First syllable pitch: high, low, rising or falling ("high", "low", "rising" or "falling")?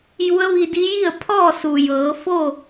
rising